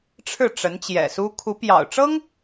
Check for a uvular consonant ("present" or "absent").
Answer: absent